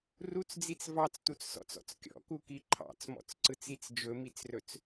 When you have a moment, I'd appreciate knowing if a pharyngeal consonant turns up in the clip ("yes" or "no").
no